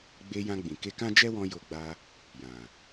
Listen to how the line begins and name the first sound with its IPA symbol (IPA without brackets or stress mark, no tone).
ɡ͡b